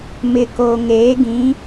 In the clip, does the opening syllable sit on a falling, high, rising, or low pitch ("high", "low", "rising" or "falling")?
low